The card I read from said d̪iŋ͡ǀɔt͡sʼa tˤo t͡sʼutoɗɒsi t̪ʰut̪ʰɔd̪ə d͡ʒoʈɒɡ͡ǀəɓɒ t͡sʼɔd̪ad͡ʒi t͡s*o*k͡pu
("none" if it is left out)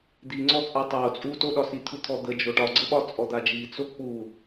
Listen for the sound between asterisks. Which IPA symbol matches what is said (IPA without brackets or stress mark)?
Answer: o